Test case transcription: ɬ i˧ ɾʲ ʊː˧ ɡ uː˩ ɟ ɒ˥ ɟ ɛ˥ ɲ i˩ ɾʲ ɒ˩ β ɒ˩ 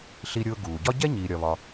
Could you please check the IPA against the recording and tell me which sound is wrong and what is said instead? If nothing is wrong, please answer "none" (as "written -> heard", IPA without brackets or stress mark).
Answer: none